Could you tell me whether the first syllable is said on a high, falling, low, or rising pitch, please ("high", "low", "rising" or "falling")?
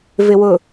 low